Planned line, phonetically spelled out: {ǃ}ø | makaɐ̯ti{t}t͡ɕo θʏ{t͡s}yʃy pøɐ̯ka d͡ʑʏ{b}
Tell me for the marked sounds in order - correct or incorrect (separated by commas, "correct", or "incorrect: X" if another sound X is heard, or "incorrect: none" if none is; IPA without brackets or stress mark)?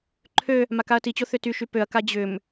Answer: incorrect: ǃʰ, incorrect: none, incorrect: t, incorrect: m